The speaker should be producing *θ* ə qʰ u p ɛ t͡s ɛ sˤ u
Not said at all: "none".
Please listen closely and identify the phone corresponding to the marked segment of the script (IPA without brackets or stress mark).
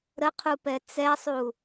ɾ